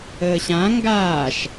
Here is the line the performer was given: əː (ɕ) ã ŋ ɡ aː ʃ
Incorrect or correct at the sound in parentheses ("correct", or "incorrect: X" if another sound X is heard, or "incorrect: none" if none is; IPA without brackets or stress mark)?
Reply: correct